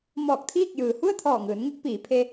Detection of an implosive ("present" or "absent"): absent